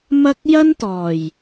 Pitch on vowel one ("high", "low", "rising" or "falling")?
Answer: high